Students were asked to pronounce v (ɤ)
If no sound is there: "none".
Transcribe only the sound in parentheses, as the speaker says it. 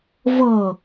ɤ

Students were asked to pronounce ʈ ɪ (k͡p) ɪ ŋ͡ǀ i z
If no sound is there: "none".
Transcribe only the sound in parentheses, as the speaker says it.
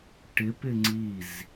p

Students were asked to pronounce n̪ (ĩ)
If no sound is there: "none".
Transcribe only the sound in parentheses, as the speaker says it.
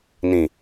ĩ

